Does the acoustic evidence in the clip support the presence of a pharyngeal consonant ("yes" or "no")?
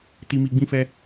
no